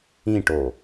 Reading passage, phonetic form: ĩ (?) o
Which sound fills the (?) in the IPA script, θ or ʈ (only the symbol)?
ʈ